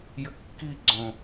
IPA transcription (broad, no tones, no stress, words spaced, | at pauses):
jɘkːiɡ͡ǀõ